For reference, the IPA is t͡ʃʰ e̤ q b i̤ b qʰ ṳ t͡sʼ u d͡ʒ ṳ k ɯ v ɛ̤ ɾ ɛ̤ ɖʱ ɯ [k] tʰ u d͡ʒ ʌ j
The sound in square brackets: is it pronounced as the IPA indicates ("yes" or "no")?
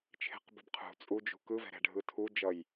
no